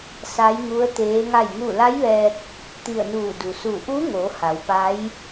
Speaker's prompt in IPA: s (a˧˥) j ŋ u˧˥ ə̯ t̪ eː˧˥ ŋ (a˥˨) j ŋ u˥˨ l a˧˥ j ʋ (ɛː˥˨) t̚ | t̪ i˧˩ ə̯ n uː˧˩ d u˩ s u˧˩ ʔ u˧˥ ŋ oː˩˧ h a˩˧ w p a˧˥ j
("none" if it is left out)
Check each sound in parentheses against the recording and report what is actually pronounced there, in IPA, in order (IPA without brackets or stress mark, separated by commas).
a˧˥, a˥˨, ɛː˧